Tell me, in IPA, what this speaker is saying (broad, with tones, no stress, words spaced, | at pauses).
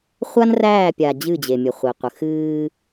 χʷa˦nræː˦˨pʲa˨ d͡ʑɨ˦˨d͡ʑe˨mʲə˨χʷi˨ qʷə˨ xɨː˦